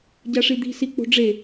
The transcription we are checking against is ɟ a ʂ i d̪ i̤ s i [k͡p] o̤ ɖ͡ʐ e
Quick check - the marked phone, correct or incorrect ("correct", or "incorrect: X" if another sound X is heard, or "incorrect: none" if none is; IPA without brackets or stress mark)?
correct